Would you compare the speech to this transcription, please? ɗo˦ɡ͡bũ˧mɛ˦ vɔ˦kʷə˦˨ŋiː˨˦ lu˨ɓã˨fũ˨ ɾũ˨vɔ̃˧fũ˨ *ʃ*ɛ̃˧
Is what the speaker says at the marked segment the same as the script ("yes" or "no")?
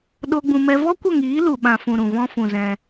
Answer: no